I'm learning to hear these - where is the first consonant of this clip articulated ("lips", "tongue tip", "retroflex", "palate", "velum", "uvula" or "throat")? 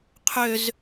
uvula